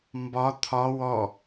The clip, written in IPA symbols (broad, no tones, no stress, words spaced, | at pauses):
mbɒ t̪ʰɒ wɔ